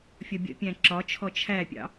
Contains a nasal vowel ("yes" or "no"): yes